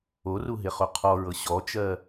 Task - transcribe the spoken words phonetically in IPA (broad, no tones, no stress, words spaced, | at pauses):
oruɦeχo qʰɔɹɤ ɕɔt͡ʃɜ